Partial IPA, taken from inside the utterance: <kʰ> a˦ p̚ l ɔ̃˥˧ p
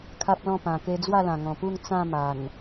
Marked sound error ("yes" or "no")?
no